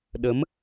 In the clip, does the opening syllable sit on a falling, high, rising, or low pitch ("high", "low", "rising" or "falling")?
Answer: rising